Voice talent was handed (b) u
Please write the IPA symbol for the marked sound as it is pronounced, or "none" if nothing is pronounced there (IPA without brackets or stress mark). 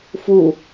f